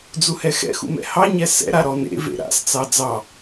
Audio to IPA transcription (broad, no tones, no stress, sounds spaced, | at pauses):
d͡z u h ɛ x ɛ̰ x ṵ m ɛ̰ h ɑ ɲ ɛ s ɛ̰ ɾ a ɾ ɔ n ḛ v ḛ ɾ a̰ s t͡s ɑ d͡z ɑ